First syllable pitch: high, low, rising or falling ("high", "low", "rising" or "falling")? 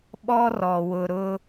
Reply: high